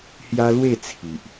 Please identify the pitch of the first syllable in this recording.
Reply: high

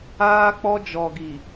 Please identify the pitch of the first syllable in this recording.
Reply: high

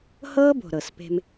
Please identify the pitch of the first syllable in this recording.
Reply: high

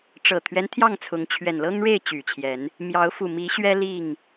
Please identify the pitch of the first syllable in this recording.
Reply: low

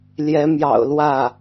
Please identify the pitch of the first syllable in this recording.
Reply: rising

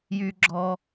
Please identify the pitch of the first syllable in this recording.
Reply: high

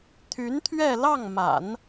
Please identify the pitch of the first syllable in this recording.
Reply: rising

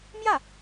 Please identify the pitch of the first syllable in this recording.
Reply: falling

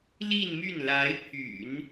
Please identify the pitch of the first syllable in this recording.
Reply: falling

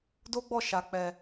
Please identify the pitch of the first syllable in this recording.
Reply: high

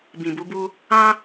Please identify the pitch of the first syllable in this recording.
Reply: low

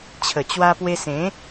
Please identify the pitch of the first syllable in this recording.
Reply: low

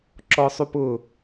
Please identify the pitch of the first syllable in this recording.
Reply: high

